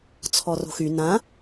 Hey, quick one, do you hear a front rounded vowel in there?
yes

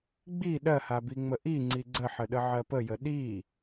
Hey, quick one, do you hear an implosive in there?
yes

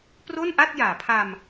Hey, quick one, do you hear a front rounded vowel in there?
no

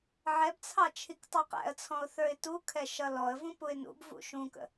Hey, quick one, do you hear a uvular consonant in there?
yes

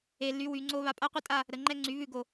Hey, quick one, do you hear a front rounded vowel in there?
yes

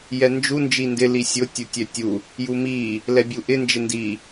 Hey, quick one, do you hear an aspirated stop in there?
no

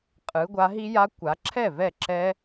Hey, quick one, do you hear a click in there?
yes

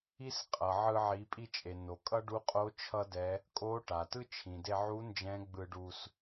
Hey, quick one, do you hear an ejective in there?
yes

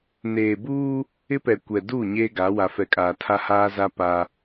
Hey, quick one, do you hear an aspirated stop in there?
yes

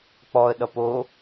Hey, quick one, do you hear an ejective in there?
no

